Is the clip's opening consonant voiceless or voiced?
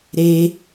voiced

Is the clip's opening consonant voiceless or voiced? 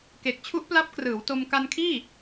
voiceless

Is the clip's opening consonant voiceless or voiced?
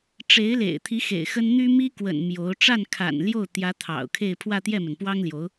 voiceless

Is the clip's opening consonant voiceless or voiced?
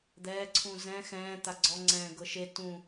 voiced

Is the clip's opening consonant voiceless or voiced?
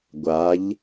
voiced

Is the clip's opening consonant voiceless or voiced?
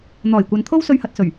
voiced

